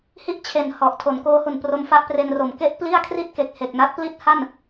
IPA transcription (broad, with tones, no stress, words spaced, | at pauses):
hi˥˩ʔt͡ɕʰe˨˩n hɔ˨˩ʔ tʰo˩˦nkoː˦˥hu˨˩npro˧m fa˥˩ʔpre˧nro˩˦m ke˥˩ʔpli˥˩a̯ kʰri˥˩t̚ke˨˩k̚he˨˩k̚ na˦˥t̚pli˥˩t̚ha˥˩n